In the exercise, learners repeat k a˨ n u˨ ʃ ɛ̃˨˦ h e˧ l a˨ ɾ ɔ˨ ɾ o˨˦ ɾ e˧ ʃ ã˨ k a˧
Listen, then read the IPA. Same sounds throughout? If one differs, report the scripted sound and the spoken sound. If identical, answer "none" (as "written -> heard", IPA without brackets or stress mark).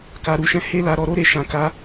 n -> ɾ